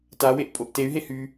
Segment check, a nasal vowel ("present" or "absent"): absent